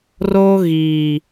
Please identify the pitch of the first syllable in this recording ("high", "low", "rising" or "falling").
high